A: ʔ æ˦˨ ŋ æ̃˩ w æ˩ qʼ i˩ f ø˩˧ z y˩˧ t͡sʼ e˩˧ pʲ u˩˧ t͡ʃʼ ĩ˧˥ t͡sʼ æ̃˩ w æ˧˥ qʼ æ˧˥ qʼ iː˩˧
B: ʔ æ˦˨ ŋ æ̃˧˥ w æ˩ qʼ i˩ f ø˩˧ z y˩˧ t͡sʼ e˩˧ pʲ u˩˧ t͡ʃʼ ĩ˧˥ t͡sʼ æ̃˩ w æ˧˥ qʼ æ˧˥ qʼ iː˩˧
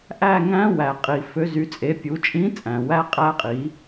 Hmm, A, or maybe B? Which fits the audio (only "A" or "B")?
B